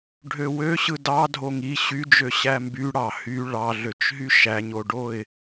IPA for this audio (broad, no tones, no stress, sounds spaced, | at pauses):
ɖʱ ø w ø ɕ ɯ d ɑ dʱ o ŋ i ɕ y d͡ʒ ø ɕ æ m b y ɽ ɑ h y ɭ ɑ ɮ ø t͡ʃ ɦ y ʃ æ ɲ o ɖ o ɪ̯